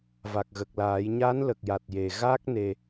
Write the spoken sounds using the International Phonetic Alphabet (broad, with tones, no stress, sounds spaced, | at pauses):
v a˨˩ k̚ ɣ ə˨˩ k̚ l aː˨˩˦ j ɲ a˧˥ n l ə˨˩ k̚ j a˨˩ t̚ j e˨˩ ɣ a˦˥ k̚ n e˧